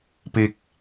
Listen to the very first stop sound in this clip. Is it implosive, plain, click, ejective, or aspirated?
plain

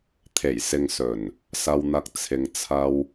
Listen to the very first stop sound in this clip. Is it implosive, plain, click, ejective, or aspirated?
aspirated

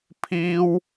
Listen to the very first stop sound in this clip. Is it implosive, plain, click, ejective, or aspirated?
aspirated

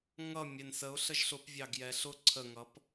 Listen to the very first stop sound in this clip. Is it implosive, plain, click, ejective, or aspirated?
plain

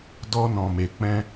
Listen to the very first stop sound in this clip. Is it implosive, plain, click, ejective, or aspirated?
plain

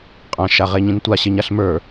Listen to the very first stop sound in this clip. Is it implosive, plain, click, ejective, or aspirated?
ejective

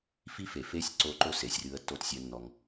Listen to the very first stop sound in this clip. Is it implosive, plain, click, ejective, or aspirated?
click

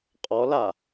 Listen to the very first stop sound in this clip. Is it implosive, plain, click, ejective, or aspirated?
ejective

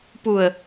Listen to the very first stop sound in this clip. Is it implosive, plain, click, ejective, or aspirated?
plain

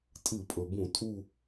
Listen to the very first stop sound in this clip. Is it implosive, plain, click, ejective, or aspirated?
ejective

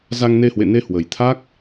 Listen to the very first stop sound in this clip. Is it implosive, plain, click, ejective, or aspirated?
aspirated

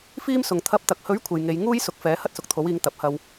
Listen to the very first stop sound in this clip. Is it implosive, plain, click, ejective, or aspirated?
aspirated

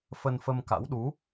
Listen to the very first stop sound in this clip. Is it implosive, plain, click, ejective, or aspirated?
plain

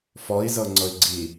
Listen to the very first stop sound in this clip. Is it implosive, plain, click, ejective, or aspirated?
click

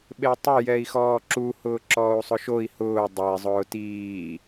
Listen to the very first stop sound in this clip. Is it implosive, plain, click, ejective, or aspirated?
implosive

